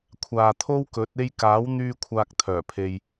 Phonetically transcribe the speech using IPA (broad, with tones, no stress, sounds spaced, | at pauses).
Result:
kʷʰ aː˨ t̪ʰ o˥ w k ɵ˨˥ t̚ e˧ j k aː˨˥ w n̪ yː˧ kʷʰ aː˨ k̚ t̪ʰ œː˨˩ pʰ e˨ j